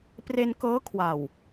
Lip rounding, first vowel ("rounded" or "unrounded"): unrounded